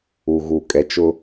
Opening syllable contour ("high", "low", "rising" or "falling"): low